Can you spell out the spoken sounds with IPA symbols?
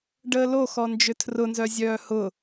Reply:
ɖ əː l o x ɔ n d͡ʒ ʏ tʰ r ʊ n z œ zʲ œː h ʊ

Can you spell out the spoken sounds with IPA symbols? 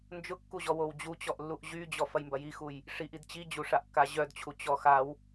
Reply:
n d͡ʒ ʊ kː u ʑ ɔ w o w d͡ʑ u t͡ɕ ɔ ʔ lː u ʔ ʑ y d͡ʑ ɔ f ɐ j m b ɐ j i x u j | ʂ i ʔ i d t͡ɕ i d͡ʑ u ʂ a ʔ kː a ʑ œ d t͡ɕʰ u t͡ɕ ɔ x a w

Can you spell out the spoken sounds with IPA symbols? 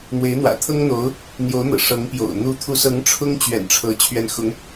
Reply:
n̪ w e˧˥ ɪ̯ n̪ w ä̰˨˩ t̪ʰ ɤ˥ ŋ n̪ o˧˥ ʊ̯ | n̪ j o˧˥ ʊ̯ n̪ ɤ̰˨˩ ʂ ɤ˧˥ ŋ p j o̰˨˩ ʊ̯ n̪ u˧˥ t̪ʰ u˧˥ s ɤ˧˥ ŋ ʈ͡ʂʰ ʊ˥ ŋ t͡ɕ ɥ ɛ̰˨˩ n ʈ͡ʂʰ ɤ˧˥ t͡ɕʰ ɥ ɛ˧˥ n x ʊ˧˥ ŋ

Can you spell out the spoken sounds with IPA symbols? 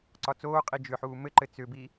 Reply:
ǀ ɒ t͡s oː qʼ i d͡ʒ ʏ ħ uː m ɘ ǃ ɘ t͡s ʏ b i

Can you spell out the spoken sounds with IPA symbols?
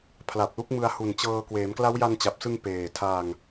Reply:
pʰ l a˨˩ p̚ l u˦˥ k̚ m ɯ˧ a̯ h u˨˩ n t͡ɕ ɤː˧ k w eː˩˦ m k l a˦˥ w j a˧ n t͡ɕ a˨˩ p̚ s ɯ˧ ŋ p eː˨˩ tʰ a˧ ŋ

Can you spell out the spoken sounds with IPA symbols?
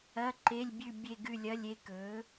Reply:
ɐ˧˥˧ ǃ e˧˥˧ lʲ bʲ ʉ˦˨ bʲ e˦˨ ɡ ʉ˦˨ lʲ ɐ˧˥˧ lʲ e˧˥ k ɵ˩˥

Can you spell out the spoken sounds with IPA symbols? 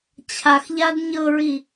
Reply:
t͡ɕʰ a x ʎ a d ɲ ɤ ɹ i

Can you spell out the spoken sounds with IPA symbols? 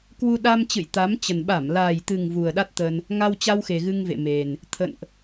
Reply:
k w u˧ ɗ a˧ m t͡ɕ ɨ̰˧˨ j t̪ a˨˦ m t͡ɕ ə˨˩ n ɓ a˧˩ m l a˨˩ j t̪ ɨ˨˩ ŋ v u˨˩ ə̯ ɗ a˦˥ t̚ t̪ ə˧ n | ŋ a˧ w t͡ɕ a˧ w x e˨˩ ɣ ɨ˧ ŋ v ḛ˧˨ m e˨˩ n | t̪ʰ ə̰˧˨ n ʔ

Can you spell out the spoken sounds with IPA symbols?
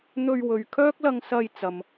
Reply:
n̪ ɵ˧ ɥ w ɵ˨ ɥ kʰ œː˥ k̚ l ɐ˧ ŋ s ɐ˧ j t͡s ɐ˨ m

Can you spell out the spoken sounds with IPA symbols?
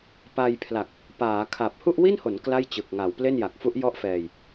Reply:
p a˧ j pʰ l a˨˩ k̚ | p aː˩˦ kʰ a˨˩ p̚ h u˥˩ ʔ w i˥˩ n h o˩˦ n k l a˥˩ j t͡ɕ ɯ˨˩ k̚ ŋ a˩˦ w p l e˥˩ n j a˨˩ k̚ f u˦˥ ʔ j ɔ˥˩ ʔ f ɛː˧ j

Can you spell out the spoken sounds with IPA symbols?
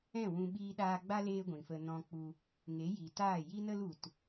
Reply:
ɛ̃˦˨ w ũ˧ ɓ iː˧ ɗ aː˧ ɡ͡b a˦ l eː˦ ɡʷ ĩ˨ f ə˧ n ɔ̃˧ k͡p u˧ | ŋ e˨˦ j i˨ t aː˦˨ j i˦ n ə˦ l u˨ t

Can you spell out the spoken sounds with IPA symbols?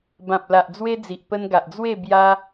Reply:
b ã˨ p̚ l a˨ ʔ d͡z w e˦ d͡z i˨ ʔ p ə˧ n ɡ a˨ ʔ d͡z w e˥˧ b j a˦

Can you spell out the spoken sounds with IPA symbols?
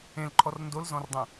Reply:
ẽ l ǃʰ ɔ r n d o l z ɔ̃ r dˤ ẽ

